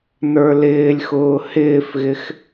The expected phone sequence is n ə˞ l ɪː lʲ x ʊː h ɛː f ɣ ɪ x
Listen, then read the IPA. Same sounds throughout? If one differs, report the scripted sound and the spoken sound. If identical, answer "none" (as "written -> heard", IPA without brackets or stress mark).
ɛː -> ɪː